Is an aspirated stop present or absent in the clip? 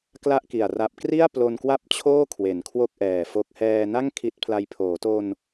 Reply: present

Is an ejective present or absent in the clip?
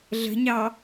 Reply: absent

